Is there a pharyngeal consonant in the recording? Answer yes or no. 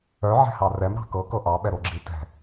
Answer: yes